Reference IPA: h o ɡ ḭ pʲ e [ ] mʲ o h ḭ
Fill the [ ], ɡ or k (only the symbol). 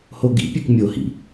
k